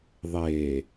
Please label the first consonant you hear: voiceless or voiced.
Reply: voiced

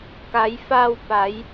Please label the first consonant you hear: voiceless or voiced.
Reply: voiceless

